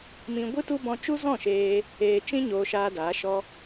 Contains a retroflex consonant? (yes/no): no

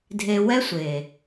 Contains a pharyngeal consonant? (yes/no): no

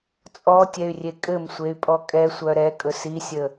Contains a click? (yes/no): no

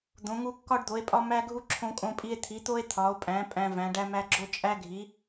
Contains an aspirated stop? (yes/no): yes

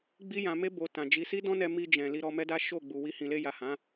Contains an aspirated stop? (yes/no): no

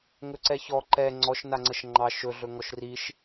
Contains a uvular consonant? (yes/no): no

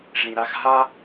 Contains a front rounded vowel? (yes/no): no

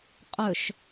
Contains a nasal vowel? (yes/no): no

